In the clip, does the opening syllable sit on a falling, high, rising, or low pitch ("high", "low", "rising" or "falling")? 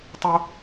high